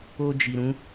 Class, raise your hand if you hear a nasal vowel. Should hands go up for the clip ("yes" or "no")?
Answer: yes